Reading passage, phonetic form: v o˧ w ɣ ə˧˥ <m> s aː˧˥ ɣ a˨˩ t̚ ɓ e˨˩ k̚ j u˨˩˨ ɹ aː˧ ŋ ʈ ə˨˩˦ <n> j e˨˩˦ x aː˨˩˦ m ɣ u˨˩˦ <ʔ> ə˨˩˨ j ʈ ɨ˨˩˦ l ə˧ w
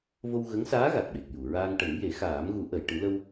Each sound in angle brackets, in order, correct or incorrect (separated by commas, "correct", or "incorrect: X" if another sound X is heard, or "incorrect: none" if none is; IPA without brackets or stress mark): incorrect: ŋ, incorrect: ŋ, correct